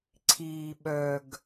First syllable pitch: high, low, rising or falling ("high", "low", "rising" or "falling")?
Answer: low